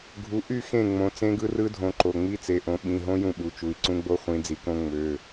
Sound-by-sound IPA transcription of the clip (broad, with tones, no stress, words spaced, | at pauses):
ɡʱu˨˦ ʔy˥˨ xẽ˥˨ŋ͡mõ˨˦ t͡sẽ˦˥ɡɯ˦˥rɯ˦˥dʱõ˨˦ ǃo˩˧˩ŋ͡mi˦˥t͡se˩˧˩ʔõ˨˦ ɓĩ˩˧˩ɦõ˦˥ jũ˥˨ɓu˩˧˩t͡ʃu˩˧˩i̯ ǀũ˦˥ɡ͡bo˦˥χʷĩ˨˦ d͡zi˨˦kõ˦˥ ŋ͡mø˩˧˩